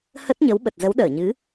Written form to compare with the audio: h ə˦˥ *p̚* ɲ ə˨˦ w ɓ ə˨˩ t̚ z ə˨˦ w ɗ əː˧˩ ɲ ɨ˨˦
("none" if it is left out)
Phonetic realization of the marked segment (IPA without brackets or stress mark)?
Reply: t̚